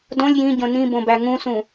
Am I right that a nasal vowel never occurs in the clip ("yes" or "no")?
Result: no